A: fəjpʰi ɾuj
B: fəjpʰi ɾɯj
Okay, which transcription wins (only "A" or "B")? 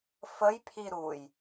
A